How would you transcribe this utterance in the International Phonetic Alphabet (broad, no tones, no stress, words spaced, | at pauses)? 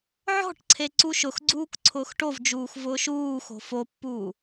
ʕɔ̤ʈǀʰe ǀuʃʊxɡ͡ǀuːk ǀʰʊːxʈovd͡ʒuːx vʊːʃuːxo̤ fopːuː